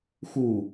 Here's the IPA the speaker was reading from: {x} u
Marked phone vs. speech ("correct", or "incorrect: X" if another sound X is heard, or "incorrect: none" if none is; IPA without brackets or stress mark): correct